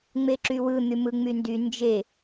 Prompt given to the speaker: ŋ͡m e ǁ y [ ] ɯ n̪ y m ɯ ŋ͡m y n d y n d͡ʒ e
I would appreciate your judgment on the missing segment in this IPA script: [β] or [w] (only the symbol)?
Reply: w